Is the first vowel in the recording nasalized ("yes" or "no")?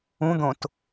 yes